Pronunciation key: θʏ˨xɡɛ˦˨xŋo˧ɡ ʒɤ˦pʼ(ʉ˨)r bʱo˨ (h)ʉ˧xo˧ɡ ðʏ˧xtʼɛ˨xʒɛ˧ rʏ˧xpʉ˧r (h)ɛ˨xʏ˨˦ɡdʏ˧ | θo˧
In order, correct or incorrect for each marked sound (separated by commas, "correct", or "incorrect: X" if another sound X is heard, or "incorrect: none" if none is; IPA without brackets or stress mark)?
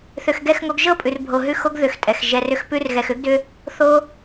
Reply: correct, incorrect: ɦ, incorrect: ɣ